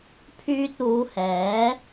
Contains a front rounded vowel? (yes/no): yes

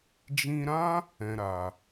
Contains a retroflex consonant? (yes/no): no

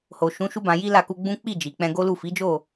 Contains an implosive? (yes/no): no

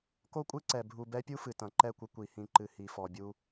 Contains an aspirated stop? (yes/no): no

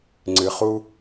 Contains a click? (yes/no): yes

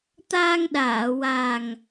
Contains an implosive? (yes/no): yes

